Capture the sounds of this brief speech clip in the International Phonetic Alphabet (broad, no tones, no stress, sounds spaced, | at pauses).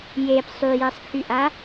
j e p sˤ y j ɛ sˤ kʰ y ʔ a